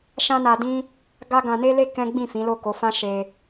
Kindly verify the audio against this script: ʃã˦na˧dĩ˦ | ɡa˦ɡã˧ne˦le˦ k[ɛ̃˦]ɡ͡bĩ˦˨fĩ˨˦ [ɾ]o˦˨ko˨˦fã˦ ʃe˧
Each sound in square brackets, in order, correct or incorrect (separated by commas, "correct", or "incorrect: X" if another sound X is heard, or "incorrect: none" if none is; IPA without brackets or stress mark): correct, incorrect: l